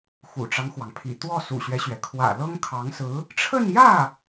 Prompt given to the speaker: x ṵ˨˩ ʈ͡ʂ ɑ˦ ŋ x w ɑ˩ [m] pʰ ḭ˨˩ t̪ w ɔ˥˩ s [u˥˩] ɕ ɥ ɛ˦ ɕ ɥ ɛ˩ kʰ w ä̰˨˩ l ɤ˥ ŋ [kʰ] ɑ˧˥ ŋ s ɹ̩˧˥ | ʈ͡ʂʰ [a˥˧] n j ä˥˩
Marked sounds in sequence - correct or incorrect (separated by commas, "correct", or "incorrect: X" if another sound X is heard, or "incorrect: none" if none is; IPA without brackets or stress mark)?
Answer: incorrect: ŋ, incorrect: ṵ˨˩, correct, incorrect: ə˥˧